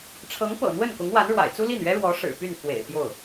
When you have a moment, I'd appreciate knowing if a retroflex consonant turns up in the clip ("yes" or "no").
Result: yes